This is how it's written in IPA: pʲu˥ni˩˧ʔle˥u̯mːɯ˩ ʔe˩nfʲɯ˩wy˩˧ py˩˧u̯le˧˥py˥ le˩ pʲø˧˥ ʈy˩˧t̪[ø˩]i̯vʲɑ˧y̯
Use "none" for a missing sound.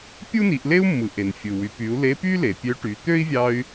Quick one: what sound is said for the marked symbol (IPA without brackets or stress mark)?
ø˥